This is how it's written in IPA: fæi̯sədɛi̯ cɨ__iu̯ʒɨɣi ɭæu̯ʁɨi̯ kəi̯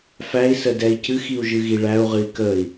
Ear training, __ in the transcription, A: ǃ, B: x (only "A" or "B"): B